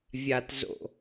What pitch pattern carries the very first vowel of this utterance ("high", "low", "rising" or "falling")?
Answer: low